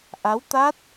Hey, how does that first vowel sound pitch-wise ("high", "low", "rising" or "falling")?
rising